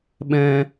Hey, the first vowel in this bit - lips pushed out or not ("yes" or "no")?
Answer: no